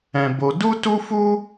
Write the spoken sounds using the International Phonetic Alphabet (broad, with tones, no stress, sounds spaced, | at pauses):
ɛ̃˧ b o˧ d u˦ t u˦ f u˦